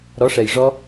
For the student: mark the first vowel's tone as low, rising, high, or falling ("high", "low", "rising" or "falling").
rising